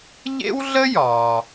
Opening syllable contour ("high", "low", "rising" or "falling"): high